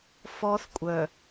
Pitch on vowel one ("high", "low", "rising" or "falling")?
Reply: high